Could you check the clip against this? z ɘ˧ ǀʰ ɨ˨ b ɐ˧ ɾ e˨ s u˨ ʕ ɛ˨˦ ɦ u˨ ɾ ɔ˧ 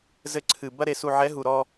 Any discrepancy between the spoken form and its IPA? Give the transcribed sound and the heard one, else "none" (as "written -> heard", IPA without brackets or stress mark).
none